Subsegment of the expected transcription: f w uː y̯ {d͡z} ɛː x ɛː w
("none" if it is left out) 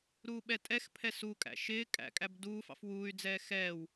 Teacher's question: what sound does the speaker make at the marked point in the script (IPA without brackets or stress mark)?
d͡z